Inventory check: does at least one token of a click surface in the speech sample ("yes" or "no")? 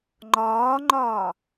yes